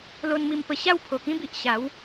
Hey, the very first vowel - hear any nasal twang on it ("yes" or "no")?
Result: no